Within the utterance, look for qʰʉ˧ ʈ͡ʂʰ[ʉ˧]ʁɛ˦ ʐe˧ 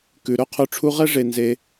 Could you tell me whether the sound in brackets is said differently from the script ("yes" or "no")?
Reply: yes